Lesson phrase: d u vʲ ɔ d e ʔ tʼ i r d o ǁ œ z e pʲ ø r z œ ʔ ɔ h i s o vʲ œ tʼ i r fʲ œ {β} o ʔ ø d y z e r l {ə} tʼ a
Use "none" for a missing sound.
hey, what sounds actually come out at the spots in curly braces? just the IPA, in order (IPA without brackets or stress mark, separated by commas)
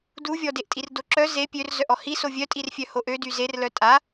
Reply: h, œ